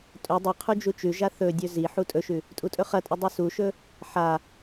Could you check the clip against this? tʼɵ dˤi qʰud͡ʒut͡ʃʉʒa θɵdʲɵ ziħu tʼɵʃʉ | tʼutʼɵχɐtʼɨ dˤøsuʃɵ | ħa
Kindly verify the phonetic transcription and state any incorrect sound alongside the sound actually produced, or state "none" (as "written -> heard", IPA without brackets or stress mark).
ø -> ɵ